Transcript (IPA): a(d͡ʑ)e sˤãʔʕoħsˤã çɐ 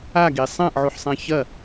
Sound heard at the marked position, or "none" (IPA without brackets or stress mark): ɡ